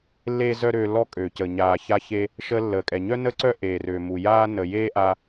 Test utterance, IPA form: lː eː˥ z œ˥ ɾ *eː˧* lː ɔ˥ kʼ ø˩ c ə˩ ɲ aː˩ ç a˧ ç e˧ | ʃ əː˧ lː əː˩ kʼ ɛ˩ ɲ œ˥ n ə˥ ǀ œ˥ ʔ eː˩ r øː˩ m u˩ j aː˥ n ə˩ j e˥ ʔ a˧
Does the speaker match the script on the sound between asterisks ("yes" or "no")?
no